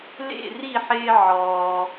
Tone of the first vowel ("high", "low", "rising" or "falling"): falling